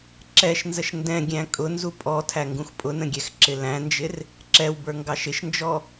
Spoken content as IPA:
ǁ ɛ ʃ n z ə ʃ n d ɛ̃ ɡʲ æ̃ kʼ ʊ n z u pʼ ɔ tʰ æ ŋ ɡ ũ x pʼ ʊ n ə̃ ɡʲ ɛ x ǁ ɪ l æ̃ n d͡ʒ ɪ r | ǁ ɛ w b ə˞ ŋ ɡ ɑ ʃ ɪ ʃ n d͡ʒ ɔ

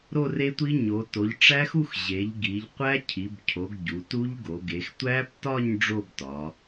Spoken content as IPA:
ɾ o˥˧ r e˦˥ tʷ i˦˥ ɲ o˩˧ t o˩˧ ʎ ʈ͡ʂ æ˦˥ x u˥˧ x ʑ e˩˧ ʎ ɡ i˩˧ ʎ qʷ æ˦˥ cʰ i˩˧ b cʰ o˩˧ ɡ ɟ u˩˧ t u˦˥ ʎ ɡ o˩˧ ɡ e˩˧ x tʷ æ˦˥ p t ɒ˥˧ ɲ ɖ͡ʐ o˥˧ b t ɒ˩˧

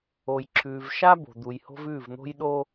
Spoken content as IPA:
o˨ j ǁʰ ʉː˨ v ʃ a˦ b o̤˨ d̪ u˨ j h o̤˦ v ʉː˦˨ v n̪ o̤˦ j ɗ o˦

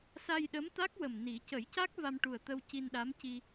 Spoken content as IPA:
s a˧ j ɗ ə˧˥ m t̪ a˦˥ k̚ w ə˨˩ m n i˨˩˦ c ə˨˩˦ j c a˦˥ k̚ v a˧ m ʈ u˨˩ ə̯ t̪ ə˧ w c i˧ n ɗ a˧˥ m c i˧

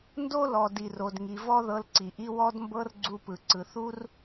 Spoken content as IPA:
n d o˥ l ɔ˩ d i˩ r o˩ d ŋ i˩ v ɔ˥ ð ɤ˧ l ǀ i˩ ʔ i˥ w ɔ˥ d m b ɤ˥ r ɡ͡ǀ u˧ p ɯ˩ ǀ ɯ˩ θ u˥ r

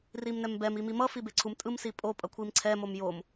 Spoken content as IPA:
r i m n ɛ m b ɛ m i m i m ʌ f i b e ǀʰ u m tʼ ɯ m s i pʼ o pʼ ʌ kʷʰ i m ǀʰ ɛ m o m j o m

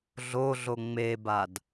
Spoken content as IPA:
ɮ o ɮ o ŋ͡m e b a d

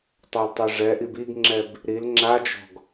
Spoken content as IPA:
tˤ œ l tˤ ɛ ʐ ɛ ʔ i b i ɡ ŋ͡ǁ ɛ b | ɾ i l ŋ͡ǁ a d͡ʒ ɔ̤ ɡ

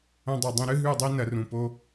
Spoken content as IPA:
ɐ̃˧ dˤ ɐ˨ dˤ ĩ˧ ɾ ɨ˦ ɦ ʉ˦˨ dˤ i˦ n ɐ˨˦ r ũ˨ p o˦

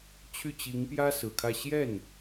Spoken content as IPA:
t͡ɕʰ y˥˩ t͡ɕ i˧˥ ŋ p j ä˥ s ɹ̩˨˩ kʰ ä˥˧ ɕ j ɛ˥˩ n

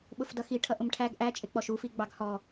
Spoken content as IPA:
ɓ ʊ f d ʌ x i ʈʰ ʌ ʔ ʊ m ʈʰ æ ɡ ʔ æ t͡ʃʼ ɪ k͡p ɔ ʃ u f i ɡ͡b ɑ ɡ h ɔ

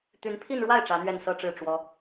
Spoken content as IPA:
t̪ y˧˥ n pʰ i˥˧ n ɻ w a˥˩ ɪ̯ ʈ͡ʂ ä˧˥ n̪ ɥ ɛ˥˩ n s ɤ˥ ʈ͡ʂ ɻ̩˥˩ ʈ͡ʂ w ɔ˥

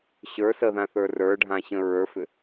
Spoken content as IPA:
ɕ ə˞ s ə ð ã θ ə˞ r ə˞ ɖʱ ã ɕ ə̃ ɹ ə˞ f ʏ

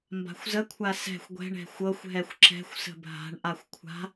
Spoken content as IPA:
m b a̤ xʷ z ə kʷʰ a s ɛ̤ xʷ ɡʷ ɛ̤ ɳ ɛ̤ xʷ ɤ xʷ ɦ ɛ xʷ ǁ ɛ̤ xʷ s ə̤ bʱ a̤ ɳ ʔ a xʷ kʷʰ a̤

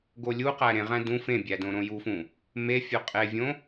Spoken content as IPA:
ɡ o lʲ u q æ ɾ ẽ ʁ æ̃ d ũ f ẽ bʲ æ d õ ɾ õ j u f ũ | m e fʲ o qʼ e vʲ õ

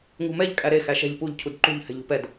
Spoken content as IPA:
ŋ ṳ m ɛ ʎ kʼ æ ɾ e x æ ʃ ɛ̤ ʎ p u ʎ cʰ u d ǃ ṳ ʎ h ɛ̤ ʎ ṳ p ɛ d

